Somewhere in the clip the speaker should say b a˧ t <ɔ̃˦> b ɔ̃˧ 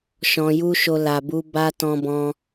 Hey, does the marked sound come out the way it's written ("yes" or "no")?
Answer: no